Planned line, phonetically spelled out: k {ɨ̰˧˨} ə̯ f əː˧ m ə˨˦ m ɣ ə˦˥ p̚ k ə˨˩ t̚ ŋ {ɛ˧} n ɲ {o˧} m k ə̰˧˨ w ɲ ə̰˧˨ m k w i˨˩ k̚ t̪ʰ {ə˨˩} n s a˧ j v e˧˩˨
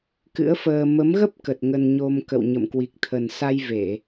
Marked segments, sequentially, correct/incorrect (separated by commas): incorrect, incorrect, correct, correct